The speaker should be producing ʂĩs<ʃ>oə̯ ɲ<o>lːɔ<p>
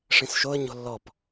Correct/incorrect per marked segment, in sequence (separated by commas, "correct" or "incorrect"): correct, incorrect, correct